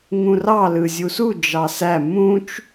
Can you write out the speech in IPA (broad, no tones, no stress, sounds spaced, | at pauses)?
ŋ ũ r ɑ l ɯ zʲ u s u d͡ʒ ɑ s æ m ũ t͡ʃ